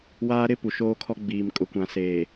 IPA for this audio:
w aː˦ ɾ ɪ˦ p u˨ ʃ oː˦ kʰ ɔ˦ ɡ͡b iː˨ m kʼ ʊ˨ kʷ ã˨ s eː˨

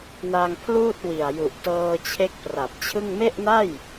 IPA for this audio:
n a˧ ŋ pʰ l uː˥˩ t̚ w i˨˩ a̯ j u˨˩ ʔ t ɤː˧ t͡ɕʰ e˦˥ k̚ p r a˨˩ p̚ t͡ɕʰ ɯ˥˩ ŋ m e˥˩ ʔ n a˥˩ j

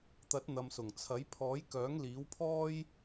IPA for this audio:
t̪ ɐ˨˥ t̚ n̪ ɐ˨ m s ʊ˨˩ ŋ t͡sʰ ɐ˨˥ j pʰ ɔː˨˥ j k œː˨˥ ŋ l iː˨˥ w pʰ ɔː˥ j

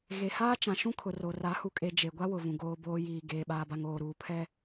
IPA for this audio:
ɣ e˨ h aː˦ t͡ʃ ã˨ ʃ ũ˦ kʰ ʊ˨ r o˨ r a˨˦ h u˨ kʼ e˨ d͡ʒ e˨ ɡʷ a˦ w ʊ˨ v ũ˨ ɡ oː˨ b oː˨ j iː˨ ɡ eː˨ ɓ aː˨ b a˨ ŋ oː˨ ɾ uː˨ pʰ ɛ˦

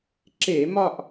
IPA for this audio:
ǁ e˧˩˧ m ɒ˦˨ ʔ

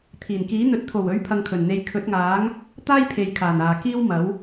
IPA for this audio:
t̪ʰ iː˨˩ n k iː˨˥ n̪ ɵ˨ t̚ t̪ʰ o˨˩ w ɵ˨˥ ɥ pʰ ɐ˧ ŋ kʰ ɵ˨˩ n n̪ e˧ j kʰ ɵ˨˥ t̚ ŋ aː˨˥ ŋ | t̪ aː˥ j pʰ e˨ j kʰ aː˨˩ n aː˨ k iː˥ w m ɐ˨˥ w

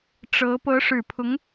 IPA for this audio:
ʈ͡ʂ ɤ˧˥ p ɤ˧˥ ʂ ɻ̩˨˩ pʰ ʊ˧˥ ŋ

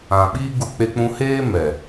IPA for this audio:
ã˨ ɓ iː˦ ɡ u˧ k͡p e˧ k͡p ũ˧ h eː˦ m ɛ˨

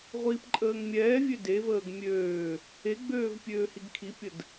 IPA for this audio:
ʁʷ iː p ǃʼ əː ŋ mʲ ɛː vʲ ø d e v əː ɡ mʲ øː | e ɡ͡b øː v pʲ øː h i ɡ kʰ i pʲ ə d

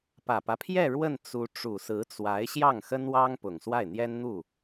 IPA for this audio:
p ä˨˩ p ä˦ pʰ j ɛ˥˧ ɻ w ə˥˩ n t͡s u˧˥ ʈ͡ʂ u˨˩ s ɹ̩˧˥ t͡s w a˧˥ ɪ̯ ɕ j ɑ˥˩ ŋ x ə˥ n w ɑ˥ ŋ p ʊ˨˩ ŋ s w a˥˩ ɪ̯ n̪ j ɛ˥ n n̪ u˥˩

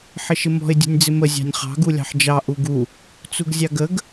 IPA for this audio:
ħ ɪ ʃ ɪ m ɔ̤ ɪ̯ dʲ ṳ nʲ d͡z ɪ m ə zʲ ɑ̤ nʲ χ ɑ̤ ɡ u lʲ ɑ̤ ħ d͡ʒ ɑ ʔ u ɡ u | t͡s u ɡ zʲ ɑ ɡ ə ɡ

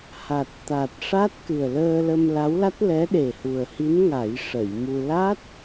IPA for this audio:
h a˨˩ t̚ t̪ a˨˩ t̚ ʂ a˦˥ t̚ k ɨ˨˩ ə̯ l əː˧ l ə˧ m l a˧˥ w l a˦˥ t̚ l ɛ˧˥ ɗ e˨˩ h u˨˩ ə̯ h i˧˥ n ŋ a˨˩˦ j ʂ ə˨˩˨ j m u˧ l a˦˥ t̚

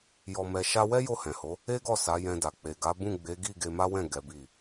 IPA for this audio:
j ɔ˨ m ɛ˨ ʃ a˧ w ɛ˦ j o˦˨ h ɛ̃˨ h o˨˦ | e˦ ɡ ɔ˦˨ s a˨˦ j ɛ̃˧ d a˨ k͡p e˨ ɡ a˨˦ b ũ˦˨ ɡ͡b e˨˦ ɡ i˦˨ ɡ e˧ m a˦ w ɛ̃˦˨ ɡ ɛ˨˦ b i˦˨

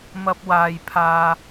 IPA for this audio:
m ɐ˧ p̚ w aː˨ j pʰ aː˧

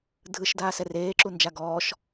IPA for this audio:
dʱ ɯ ʃ d aː s ɛ r eː ǁ u n d͡ʒ a ɡ ɔː ʃ

